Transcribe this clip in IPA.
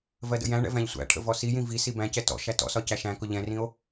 v ɜ d ə̰ j æ̃ ɳ ɛ̰ v æ̃ ʎ sʷ æ̰ ʈʰ ə̰ v ɔ s i j ĩ v i s i b æ̃ c ɛ t ɔ̰ ʃ æ t ɔ̰ s ɒ c æ ʃ æ̃ k ʊ ʎ ɛ̃ r ĩ o̯

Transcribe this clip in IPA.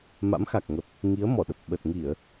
m a̰˧˥ m x a˨˩ k̚ ŋ ə˨˩ p̚ | ŋ i˨˦ ə̯ m ɔ˧˩ ɗ ə˨˩ p̚ ɓ ə˨˩ t̚ ŋ i˧˩˨ ə̯

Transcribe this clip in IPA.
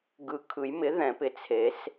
ɡ ɯ˨˩ kʰ ɯ˨˩˦ j m ɪ˩˥ ð ɛ̃˨˩˦ p ɪ˩˥ t͡sʰ e˨˩˦ s

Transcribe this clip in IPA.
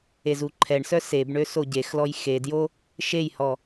e z u ǃʰ ɛ ɳ s œ s e b ɳ ø s o ɟ e x l ɔ j x e d j o | ʃ e j h ɔ

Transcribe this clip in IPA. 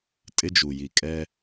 tʼ ɪ˦ d͡ʒ u˨ j i˨ kʼ ɛ˦

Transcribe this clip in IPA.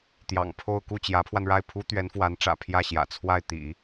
t̪ j ɑ̰˨˩ ŋ pʰ o˥˧ ʊ̯ k u˥˩ t͡ɕ j ä˧˥ pʰ w a˧ n ɻ a˥˩ ɪ̯ pʰ u˥ t̪ ɥ ɛ˧˥ n f w a˧˥ n ʈ͡ʂ ä̰˨˩ pʰ j ä˥˩ ɕ j ä̰˨˩ t͡sʰ w a˥˩ ɪ̯ t̪ ḭ˨˩˦

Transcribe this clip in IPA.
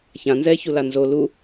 ç ã n z ɛː ç u l a n z o l u

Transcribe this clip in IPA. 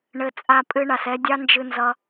ɳ ɘ˧ t͡sʼ a˧ pʼ ɨ˧ ɳ a˨ s ɛ˧ dʲ ɑ˦ n d͡ʒ ɨ˧ n z ʌ˧

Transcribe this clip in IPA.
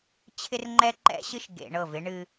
t͡ɕʰ ɪ˦ r ŋ͡ǃ ɛ˦ ǃ ɛ̰˦ ɕ ɨ˦ ʃ ɡ ḛ˨ ɳ ɤ˦˨ v ɪ˦ ɳ ɨ˦

